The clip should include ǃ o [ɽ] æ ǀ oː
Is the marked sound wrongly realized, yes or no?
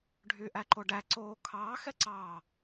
yes